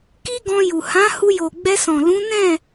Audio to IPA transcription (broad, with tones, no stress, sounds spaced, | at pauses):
k i˦ ɡ ɔ̃˧ j u˨ h ã˨˦ h u˧ j o˨ ɡ͡b ɛ˧ s ɔ̃˨ l ũ˨˦ n ɛ̃˦˨